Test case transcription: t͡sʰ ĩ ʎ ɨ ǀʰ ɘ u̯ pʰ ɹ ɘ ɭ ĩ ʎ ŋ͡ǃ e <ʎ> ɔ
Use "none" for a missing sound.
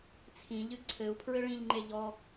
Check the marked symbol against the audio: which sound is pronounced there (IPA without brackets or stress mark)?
ʎ